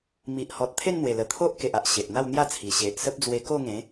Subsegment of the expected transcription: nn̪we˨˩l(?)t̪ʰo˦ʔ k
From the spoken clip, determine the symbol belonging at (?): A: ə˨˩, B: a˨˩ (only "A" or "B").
A